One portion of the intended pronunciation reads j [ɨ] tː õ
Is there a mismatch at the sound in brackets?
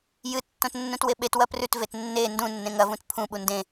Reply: no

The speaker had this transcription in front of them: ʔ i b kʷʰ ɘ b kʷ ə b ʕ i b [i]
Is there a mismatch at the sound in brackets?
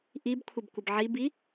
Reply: no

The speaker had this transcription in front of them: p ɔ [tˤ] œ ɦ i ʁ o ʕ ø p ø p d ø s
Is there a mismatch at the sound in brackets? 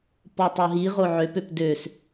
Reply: no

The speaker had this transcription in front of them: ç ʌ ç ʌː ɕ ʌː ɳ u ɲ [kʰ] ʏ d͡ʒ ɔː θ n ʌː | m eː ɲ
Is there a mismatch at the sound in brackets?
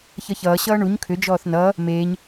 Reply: no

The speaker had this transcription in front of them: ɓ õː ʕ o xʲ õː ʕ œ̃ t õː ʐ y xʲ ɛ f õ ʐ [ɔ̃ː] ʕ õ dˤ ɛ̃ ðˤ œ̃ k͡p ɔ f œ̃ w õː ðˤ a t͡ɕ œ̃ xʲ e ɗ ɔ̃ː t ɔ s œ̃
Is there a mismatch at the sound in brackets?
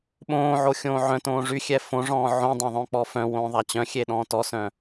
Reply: no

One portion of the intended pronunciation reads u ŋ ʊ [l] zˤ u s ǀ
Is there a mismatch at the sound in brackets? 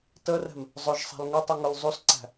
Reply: no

